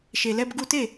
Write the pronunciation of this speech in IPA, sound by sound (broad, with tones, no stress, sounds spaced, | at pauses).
ʃ e˨ l ɛ˧ b ɡ u˧ t e˦˨